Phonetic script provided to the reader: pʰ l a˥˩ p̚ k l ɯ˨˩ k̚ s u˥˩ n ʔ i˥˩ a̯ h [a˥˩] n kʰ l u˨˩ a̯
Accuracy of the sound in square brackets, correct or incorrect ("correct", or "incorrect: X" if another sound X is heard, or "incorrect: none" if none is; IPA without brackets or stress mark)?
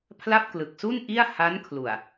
incorrect: a˦˥